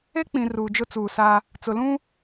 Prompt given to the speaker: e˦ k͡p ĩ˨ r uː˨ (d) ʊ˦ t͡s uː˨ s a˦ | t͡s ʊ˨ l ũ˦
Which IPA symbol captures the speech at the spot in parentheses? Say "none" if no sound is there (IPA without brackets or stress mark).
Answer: d͡ʒ